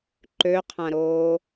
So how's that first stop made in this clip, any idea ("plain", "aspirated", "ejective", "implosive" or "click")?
click